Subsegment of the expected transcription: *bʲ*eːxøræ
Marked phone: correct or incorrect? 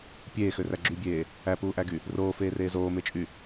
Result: incorrect: pʲ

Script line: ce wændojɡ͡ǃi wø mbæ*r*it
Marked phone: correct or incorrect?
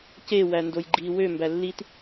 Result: incorrect: lː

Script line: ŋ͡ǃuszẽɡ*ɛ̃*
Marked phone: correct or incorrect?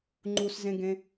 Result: incorrect: ẽ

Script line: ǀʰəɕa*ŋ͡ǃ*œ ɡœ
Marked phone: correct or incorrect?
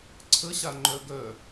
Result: correct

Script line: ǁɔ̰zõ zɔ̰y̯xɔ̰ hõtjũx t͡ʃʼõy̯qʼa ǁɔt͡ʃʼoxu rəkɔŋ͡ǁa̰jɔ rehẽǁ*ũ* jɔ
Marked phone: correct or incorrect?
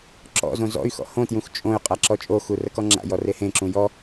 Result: correct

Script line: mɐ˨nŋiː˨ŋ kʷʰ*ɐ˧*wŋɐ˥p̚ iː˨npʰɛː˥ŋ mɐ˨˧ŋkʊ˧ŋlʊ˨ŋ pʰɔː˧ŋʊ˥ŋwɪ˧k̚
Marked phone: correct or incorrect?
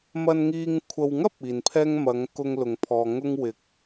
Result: incorrect: ɐ˨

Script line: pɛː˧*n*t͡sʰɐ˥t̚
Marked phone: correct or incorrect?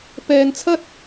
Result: correct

